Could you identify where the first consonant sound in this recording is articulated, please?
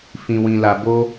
labial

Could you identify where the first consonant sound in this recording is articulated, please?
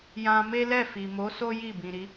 palatal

